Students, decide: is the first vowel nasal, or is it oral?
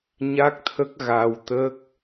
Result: oral